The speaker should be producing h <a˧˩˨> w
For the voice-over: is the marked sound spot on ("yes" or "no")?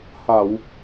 yes